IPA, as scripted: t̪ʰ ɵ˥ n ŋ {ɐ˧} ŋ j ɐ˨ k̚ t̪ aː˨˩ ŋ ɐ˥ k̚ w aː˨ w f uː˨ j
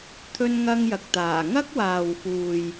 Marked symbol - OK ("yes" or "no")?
no